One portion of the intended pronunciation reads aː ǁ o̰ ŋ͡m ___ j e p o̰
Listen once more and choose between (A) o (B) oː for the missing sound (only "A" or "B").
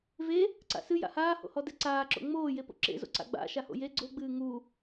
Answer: B